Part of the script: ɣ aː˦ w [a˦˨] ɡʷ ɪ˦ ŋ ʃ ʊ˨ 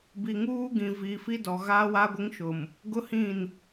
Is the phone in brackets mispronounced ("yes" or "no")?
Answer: yes